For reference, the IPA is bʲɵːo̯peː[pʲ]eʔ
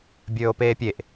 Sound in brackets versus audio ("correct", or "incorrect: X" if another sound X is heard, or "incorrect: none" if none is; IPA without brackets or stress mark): correct